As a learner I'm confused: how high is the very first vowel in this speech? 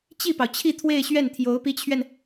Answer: high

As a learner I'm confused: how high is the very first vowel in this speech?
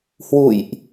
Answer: high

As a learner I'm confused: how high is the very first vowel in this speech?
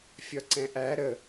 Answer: low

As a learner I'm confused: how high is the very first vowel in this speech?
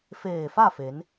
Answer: mid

